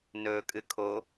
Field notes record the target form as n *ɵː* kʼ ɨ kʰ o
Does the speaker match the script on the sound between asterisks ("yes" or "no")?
yes